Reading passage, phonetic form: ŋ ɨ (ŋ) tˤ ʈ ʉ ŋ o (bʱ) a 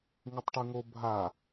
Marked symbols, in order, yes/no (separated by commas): no, yes